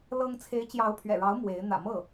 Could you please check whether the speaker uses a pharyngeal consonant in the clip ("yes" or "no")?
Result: no